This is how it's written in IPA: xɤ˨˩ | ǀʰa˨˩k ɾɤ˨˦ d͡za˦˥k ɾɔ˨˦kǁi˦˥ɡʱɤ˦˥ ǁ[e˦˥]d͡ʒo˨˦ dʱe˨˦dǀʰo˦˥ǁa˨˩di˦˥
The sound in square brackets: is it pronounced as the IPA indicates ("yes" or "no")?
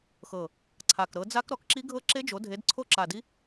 yes